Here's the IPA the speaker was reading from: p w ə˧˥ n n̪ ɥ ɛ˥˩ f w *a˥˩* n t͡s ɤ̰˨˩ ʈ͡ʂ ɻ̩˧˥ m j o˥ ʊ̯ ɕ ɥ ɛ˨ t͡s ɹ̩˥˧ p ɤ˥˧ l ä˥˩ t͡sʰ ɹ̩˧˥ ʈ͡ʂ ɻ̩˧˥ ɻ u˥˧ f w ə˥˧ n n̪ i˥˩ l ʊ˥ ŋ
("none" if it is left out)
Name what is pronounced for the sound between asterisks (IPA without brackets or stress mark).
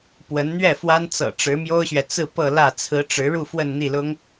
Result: a˥